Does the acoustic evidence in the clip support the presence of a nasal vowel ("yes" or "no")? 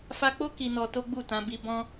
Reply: yes